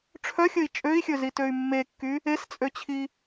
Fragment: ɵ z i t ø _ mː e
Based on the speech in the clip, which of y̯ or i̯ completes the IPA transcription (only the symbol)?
y̯